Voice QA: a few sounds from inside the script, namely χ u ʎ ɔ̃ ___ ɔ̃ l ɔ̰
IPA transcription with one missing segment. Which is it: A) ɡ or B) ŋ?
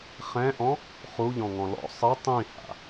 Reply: B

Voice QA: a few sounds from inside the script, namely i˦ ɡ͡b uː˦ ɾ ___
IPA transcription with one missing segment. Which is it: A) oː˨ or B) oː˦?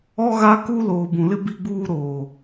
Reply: A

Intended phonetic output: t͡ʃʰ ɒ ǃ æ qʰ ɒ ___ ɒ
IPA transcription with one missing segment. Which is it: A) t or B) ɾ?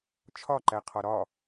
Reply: B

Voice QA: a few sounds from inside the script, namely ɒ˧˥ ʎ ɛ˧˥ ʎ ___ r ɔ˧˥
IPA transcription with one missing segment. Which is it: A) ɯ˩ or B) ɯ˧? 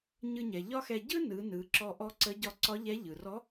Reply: A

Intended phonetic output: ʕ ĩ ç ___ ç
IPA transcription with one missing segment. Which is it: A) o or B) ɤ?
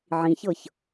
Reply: B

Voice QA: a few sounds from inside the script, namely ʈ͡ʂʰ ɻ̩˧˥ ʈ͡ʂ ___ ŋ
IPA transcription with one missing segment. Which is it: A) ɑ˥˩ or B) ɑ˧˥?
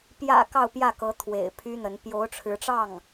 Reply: A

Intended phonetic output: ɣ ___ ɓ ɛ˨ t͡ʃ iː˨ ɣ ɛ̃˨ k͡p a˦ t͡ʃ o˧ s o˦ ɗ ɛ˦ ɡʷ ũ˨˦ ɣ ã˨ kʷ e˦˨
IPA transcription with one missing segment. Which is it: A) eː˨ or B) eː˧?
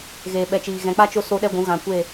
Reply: A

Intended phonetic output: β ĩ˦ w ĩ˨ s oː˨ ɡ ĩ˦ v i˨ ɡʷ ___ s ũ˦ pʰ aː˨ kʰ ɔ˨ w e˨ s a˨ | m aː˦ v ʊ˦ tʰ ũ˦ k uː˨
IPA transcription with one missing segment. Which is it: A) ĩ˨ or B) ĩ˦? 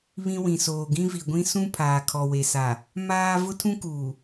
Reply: B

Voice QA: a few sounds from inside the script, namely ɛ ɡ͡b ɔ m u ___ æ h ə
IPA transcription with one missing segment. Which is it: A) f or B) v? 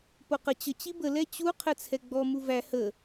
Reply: B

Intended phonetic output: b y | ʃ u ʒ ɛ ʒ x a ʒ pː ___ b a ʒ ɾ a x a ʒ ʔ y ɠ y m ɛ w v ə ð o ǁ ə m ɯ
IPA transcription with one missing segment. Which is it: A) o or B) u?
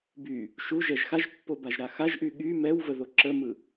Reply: A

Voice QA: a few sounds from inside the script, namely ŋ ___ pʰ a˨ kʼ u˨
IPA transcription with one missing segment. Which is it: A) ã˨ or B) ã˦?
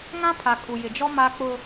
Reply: B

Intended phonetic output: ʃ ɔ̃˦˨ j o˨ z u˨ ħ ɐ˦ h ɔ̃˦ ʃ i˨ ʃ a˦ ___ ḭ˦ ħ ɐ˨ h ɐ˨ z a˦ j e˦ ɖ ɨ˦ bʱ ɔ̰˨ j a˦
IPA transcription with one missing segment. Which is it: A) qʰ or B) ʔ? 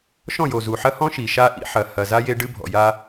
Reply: B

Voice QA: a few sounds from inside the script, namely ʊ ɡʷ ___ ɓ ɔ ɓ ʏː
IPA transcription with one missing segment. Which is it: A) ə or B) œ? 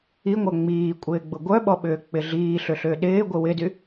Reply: B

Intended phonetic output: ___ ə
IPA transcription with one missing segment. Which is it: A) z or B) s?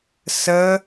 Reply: B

